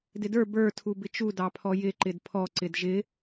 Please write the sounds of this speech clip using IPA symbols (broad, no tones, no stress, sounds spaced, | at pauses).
d ɪ d ə˞ b ə˞ tʰ u b ɪ t͡ʃ u d ɑ pʰ ɔ j ɪ ǃ ɪ d pʰ ɔ ǀ ɪ d ʒ ɪ